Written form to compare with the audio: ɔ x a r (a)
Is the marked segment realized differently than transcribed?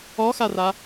no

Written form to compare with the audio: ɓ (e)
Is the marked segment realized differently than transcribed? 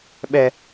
yes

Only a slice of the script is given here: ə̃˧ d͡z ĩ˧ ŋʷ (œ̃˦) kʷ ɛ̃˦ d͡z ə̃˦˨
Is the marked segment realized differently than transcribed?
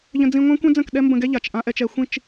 yes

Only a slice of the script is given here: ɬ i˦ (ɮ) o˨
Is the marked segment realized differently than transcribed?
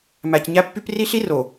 yes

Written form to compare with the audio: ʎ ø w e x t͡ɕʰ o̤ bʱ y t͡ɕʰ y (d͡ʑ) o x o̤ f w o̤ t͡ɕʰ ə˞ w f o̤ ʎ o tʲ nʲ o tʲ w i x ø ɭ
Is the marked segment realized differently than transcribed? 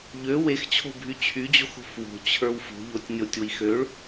no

